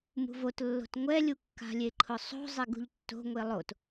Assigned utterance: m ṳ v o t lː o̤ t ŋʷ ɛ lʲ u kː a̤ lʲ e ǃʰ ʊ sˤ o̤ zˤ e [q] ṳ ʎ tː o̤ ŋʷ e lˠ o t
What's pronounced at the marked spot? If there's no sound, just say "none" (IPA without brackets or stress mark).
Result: ɡ